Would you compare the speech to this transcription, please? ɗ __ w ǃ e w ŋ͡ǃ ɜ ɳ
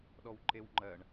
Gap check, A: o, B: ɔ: B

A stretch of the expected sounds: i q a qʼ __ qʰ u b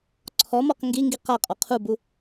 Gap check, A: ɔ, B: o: A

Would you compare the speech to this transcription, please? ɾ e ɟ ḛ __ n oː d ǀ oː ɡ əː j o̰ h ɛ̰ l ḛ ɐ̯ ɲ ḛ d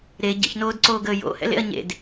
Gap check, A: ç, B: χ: A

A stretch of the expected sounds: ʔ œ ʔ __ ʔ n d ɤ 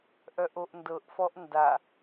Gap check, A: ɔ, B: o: B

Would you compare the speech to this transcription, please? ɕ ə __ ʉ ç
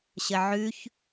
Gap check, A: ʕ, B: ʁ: A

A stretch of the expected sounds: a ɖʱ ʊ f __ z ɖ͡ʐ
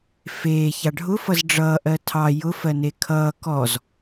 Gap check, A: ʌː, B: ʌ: B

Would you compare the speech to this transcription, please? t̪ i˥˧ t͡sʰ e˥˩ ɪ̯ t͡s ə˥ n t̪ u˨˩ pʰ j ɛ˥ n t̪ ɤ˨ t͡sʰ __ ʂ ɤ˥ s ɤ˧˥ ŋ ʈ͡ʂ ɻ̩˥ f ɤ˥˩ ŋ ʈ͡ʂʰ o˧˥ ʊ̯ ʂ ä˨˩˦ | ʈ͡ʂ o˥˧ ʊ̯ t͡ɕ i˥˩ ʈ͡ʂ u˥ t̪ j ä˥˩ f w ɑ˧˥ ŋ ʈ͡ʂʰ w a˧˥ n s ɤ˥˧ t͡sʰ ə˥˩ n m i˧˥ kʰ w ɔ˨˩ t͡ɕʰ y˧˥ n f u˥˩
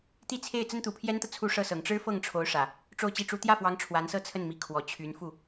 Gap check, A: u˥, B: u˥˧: A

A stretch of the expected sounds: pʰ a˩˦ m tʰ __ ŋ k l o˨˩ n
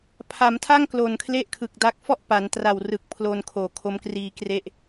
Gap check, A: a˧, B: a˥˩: B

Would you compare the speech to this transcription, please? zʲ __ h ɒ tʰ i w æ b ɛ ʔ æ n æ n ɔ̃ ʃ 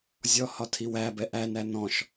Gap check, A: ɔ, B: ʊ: A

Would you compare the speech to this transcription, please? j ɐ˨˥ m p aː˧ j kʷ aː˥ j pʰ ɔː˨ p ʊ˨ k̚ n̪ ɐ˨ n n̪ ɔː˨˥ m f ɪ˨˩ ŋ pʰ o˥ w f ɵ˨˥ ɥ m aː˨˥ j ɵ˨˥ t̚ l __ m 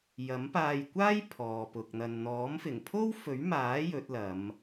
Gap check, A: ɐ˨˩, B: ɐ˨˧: B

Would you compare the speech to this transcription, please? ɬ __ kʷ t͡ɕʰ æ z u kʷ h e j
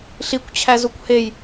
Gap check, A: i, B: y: A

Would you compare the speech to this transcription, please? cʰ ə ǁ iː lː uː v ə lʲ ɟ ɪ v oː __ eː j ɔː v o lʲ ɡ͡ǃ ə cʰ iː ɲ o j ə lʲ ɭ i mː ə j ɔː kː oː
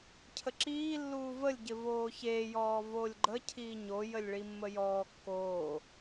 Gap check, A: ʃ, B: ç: B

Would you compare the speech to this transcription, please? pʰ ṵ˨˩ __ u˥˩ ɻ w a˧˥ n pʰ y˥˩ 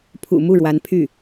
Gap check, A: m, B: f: A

